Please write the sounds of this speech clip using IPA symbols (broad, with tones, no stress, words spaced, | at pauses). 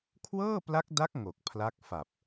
kʰwɤː˥˩pla˦˥k̚da˦˥k̚ ŋo˨˩k̚pʰla˦˥k̚fa˨˩p̚